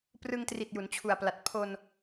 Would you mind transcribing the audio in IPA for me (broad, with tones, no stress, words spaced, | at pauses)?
prɯ˧ŋtri˨˩t̚ ju˩˦nt͡ɕʰu˨˩a̯pla˨˩t̚ pʰo˧n